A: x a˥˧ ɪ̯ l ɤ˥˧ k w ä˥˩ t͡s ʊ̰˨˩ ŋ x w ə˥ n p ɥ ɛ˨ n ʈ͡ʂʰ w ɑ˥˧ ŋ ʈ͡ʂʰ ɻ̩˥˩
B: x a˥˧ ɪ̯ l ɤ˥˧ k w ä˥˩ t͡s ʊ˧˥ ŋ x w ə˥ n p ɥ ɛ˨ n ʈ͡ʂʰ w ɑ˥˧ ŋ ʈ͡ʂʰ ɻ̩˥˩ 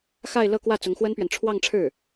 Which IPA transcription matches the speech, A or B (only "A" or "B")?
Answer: B